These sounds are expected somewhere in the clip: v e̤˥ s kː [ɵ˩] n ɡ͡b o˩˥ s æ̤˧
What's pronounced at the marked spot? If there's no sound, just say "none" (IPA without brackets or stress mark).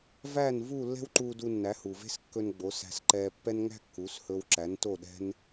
ɵ˧